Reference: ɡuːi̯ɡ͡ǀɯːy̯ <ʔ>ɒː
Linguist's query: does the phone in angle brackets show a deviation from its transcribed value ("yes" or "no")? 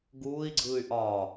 no